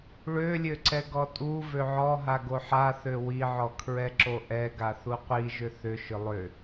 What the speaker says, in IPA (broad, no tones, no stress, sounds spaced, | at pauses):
ɭ ø lʲ ø ǀ ɛ ɡ ɔ tʼ u v ø ʕ ɔ ɦ a ɡ o ħ a θ ø w i ʕ ɔ kʰ ɹ ɛ ǁ o ʔ ɛ ɡ a θ u qʷ i ʒ ʏ θ ʏ ʃ ʏ lˠ ʏ